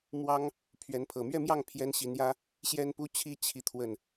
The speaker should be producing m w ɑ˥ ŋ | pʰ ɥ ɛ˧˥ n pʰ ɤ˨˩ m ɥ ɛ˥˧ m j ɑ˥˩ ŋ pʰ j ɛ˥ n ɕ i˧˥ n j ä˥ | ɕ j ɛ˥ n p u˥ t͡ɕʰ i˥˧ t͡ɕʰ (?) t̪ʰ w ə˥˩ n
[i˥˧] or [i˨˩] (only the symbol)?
i˥˧